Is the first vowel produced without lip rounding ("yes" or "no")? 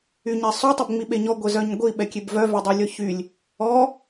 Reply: no